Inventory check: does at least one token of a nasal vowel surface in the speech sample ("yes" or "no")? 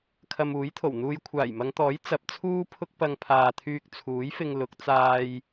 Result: no